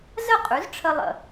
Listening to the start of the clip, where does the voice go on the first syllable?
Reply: falling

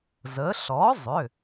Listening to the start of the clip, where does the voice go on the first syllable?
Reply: rising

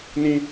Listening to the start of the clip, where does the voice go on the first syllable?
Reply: high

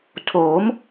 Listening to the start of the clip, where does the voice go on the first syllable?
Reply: rising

